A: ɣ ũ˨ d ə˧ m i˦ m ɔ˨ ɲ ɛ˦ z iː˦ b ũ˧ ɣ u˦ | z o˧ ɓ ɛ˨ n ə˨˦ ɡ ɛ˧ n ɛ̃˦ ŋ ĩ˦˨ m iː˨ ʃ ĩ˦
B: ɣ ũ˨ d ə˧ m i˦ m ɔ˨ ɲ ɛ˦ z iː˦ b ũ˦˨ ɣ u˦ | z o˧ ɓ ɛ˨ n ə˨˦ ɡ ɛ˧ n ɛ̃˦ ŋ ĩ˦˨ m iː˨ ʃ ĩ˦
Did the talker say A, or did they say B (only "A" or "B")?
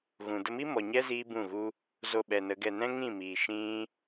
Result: B